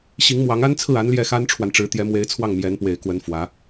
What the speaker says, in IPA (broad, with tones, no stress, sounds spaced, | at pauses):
ɕ i˧˥ ŋ m w ɑ˧˥ ŋ a˥ n t͡sʰ ɹ̩˥˩ a˧˥ n l j ɛ˥˩ x a˥ n ʈ͡ʂʰ w a˨ n ʈ͡ʂ ɻ̩˧˥ t̪ j ɛ˧˥ m w e˧˥ ɪ̯ t͡sʰ w ɑ˥˩ ŋ m j ɛ˧˥ n p w e˨˩ ɪ̯ k w ə˧˥ n f w ä˧˥